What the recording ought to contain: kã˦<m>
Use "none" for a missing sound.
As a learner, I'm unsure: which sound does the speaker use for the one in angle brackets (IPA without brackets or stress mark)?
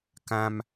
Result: m